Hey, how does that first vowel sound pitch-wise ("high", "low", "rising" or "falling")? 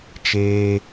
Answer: high